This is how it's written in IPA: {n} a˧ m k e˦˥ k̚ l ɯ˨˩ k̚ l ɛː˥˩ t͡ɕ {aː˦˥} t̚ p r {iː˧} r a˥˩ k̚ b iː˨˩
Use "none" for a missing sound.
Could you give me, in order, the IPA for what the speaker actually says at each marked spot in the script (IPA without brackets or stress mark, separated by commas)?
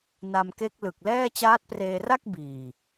n, aː˦˥, eː˧